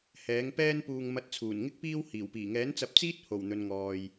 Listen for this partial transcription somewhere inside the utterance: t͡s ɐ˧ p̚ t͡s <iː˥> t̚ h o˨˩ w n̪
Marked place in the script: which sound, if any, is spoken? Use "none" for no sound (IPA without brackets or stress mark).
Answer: iː˥